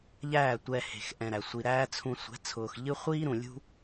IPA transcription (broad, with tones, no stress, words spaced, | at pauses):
ʎæː˦˨tʷɛ˧ he̤˨xʔɛ̃˨ɾæ˨ sʷi˨ɾæː˦t͡sʰũ˧ sʷɛ̤˨˦t͡sʰʊː˨x ʎɨ˦ χʷiː˦ɾũ˨lʲṳ˦